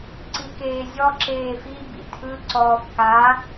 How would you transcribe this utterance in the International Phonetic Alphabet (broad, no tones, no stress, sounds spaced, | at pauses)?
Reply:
ǀ i k eː zʲ ɔ ǁ eː f i b ḭ tʰ ɯ ǀ ɔː f k a